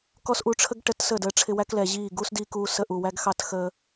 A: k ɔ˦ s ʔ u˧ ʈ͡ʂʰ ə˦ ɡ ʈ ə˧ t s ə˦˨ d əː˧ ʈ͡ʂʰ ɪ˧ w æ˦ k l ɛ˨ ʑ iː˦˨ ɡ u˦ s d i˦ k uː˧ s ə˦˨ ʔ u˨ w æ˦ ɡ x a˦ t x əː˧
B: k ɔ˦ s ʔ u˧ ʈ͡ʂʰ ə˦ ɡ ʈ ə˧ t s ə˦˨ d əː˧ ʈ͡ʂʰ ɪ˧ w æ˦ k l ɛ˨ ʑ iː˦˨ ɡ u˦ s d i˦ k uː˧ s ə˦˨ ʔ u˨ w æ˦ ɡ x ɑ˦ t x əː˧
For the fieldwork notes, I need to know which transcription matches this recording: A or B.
B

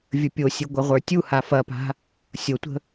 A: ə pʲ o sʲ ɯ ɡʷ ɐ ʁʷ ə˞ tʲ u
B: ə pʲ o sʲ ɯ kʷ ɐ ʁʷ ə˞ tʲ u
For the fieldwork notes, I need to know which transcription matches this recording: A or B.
A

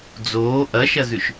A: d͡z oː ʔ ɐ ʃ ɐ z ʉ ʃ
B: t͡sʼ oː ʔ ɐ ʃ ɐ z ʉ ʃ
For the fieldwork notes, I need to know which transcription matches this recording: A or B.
A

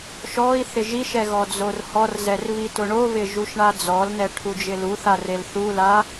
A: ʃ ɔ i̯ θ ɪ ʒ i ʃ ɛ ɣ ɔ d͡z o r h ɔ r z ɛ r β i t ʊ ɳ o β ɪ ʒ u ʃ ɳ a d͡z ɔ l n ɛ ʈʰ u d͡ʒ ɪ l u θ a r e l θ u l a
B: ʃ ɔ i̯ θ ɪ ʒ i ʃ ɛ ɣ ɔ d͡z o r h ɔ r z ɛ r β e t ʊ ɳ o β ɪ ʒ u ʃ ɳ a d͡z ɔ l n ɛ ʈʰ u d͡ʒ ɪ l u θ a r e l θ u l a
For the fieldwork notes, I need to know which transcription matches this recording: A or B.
A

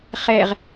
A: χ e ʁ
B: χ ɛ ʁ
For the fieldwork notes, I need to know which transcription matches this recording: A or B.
B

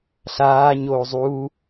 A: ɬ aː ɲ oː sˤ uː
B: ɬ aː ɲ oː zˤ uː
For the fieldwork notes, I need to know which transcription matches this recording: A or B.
B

